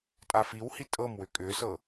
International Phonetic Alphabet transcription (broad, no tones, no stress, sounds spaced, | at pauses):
tʼ a f i w h i tʼ ɤ m w ʏ kʼ ʏ s ɤ